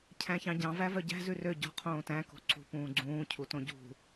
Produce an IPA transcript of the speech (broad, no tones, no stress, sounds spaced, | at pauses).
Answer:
cʰ æ̃ ç ɑ̃ ɟ ɑ̃ v æ v œ ɟ æ̤ z ʉ r ø ɟ ɔ̤ qʰ õː t æ̃ k o̤ ǀ ṳ p ũː ɡ͡ǀ ũː cʰ u t õ ɟ ṳ